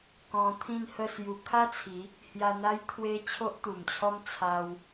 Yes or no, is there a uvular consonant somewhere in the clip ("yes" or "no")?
no